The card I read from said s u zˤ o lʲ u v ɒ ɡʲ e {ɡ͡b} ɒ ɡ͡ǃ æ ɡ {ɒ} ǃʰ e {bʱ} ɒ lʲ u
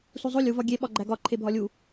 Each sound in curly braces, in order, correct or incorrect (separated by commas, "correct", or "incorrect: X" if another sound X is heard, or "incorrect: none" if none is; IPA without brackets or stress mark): incorrect: ɓ, correct, correct